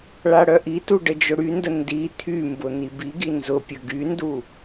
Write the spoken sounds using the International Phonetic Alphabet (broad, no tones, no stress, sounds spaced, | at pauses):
ɭ a ɽ œ ʔ i t u ɖ ə d͡ʒ ʊ ɽ y n d ə n d i t̪ʰ y m b ʊ n̪ i b i ɡ i n z ʊ pʲ ə ɡ y n d u